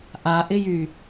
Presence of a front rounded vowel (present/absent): present